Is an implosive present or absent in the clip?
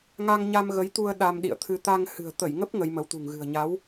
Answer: present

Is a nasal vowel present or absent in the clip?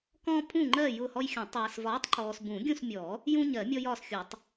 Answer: present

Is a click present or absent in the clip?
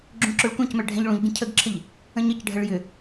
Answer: present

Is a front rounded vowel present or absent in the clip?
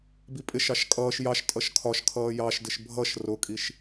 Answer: absent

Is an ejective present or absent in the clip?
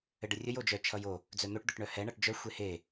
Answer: absent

